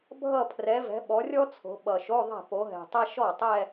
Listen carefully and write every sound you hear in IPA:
bʱ ʌ˥˧ pʰ r ɛ˨˦ v ɛ̤˨˦ ɓ ɔ˨˦ rʲ ɔ˥ t͡sʰ o̤˨˦ ɓ ʌ˨˩ ʃ o˧˥˧ ðˤ ɛ̤˥˩ p o˨˦ ɦ ɛ̤˨˩ tˤ ɛ˥ ʃ ɔ˥˩ tˤ ɛ˥˧

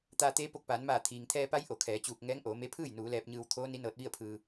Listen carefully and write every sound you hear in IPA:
t̪ aː˧ t̪ eː˧˥ p o˧˩ k̚ p aː˩˧ n m aː˧˩ t̪ʰ iː˩ ŋ t̪ʰ ɛː˧ p a˧˥ j ʔ o˩˧ kʰ ɛː˩˧ t͡ɕ uː˧˩ k̚ ŋ ɛː˧˥ ŋ ʔ oː˩˧ m e˧˥ pʰ ɯː˥˨ j n uː˩˧ l ɛː˧ p̚ ɲ ɯː˧ w t̪ʰ oː˧˥ n i˧˥ n ɤː˧ t̚ ʋ i˥˨ ə̯ pʰ ɯː˧

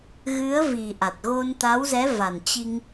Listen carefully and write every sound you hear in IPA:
ɣ ɨ˨˦ ə̯ v i˨˩ ʔ a˨˩ t̚ ɣ o˧ n t̪ a˨˦ w z ɛ˨˦ v a˨˩ n t͡ɕ i˧ ŋ

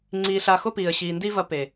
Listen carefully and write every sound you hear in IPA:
ŋ͡ǀ iː˧ ɬ a˧ x o˦ p iː˨ ə̯ ɕ iː˨ n d i˦ v ɐ˧ p eː˨

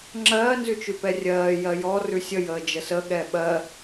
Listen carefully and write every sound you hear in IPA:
ŋ͡ǁ ɜː n z ʉ t͡ʃ ʉ p ɛ rʲ ɜː j ɜ j ɔ r ʉ sʲ ə j əː d͡ʒ ə s ə ɠ ɛː ɓ ɜ

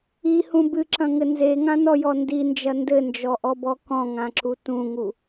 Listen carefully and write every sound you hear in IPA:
i h ũ b ɨ ǁ ɐ̃ ŋ ɘ n z e ŋ ã n ɔ j ɔ n d i n d͡ʒ ɐ n d ɘ n d͡ʒ ɔ ʔ ɔ b ɔ k ɔ̃ ŋ ã ǁ u t ũ ŋ u

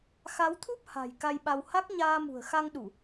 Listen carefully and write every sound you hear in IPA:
x a˨˦ w t̪ʰ u˦˥ p̚ h a̤˨˩ j k a˧ j ɓ a˧ w h a˦˥ k̚ ɲ aː˧ m ṳ˨˩ ə̯ x a˧ ŋ ɗ u˧˩˨

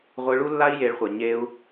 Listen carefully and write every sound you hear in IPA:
ʁʷ ɯ˧ ɭ u˦ lː a˦ i̯ j e˧ ɭ χʷ e˨ ɲ e˧ u̯

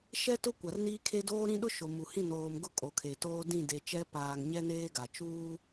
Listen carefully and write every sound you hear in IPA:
ʃ ɛ˦ t ʊ˦ kʷ a˨ r n iː˦ kʰ e˦ d oː˦ ɾ ĩ˦ ɗ ʊ˦ ʃ o˨ m u˨ h ĩ˦˨ n oː˨ m ɡ ʊ˦˨ kʼ o˨ kʰ e˨ t oː˦ d ĩ˦˨ d e˨ t͡ʃ ɛ˦ p aː˨ ŋ ɲ ɛ˦ n eː˦ ɡ a˨ t͡ʃ uː˦

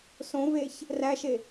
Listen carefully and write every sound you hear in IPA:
s õ v e ç | r æ ʃ e

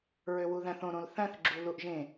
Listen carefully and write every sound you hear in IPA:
ɹ ø w u ð æ̃ θ õ ɾ õ l θ æ̃ θ ɡ͡ǁ u l u ʔ ʒ ẽ

